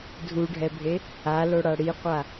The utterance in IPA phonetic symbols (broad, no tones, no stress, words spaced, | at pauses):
dʱuɖʱɛbʱe | aloɽa ɽiqʷa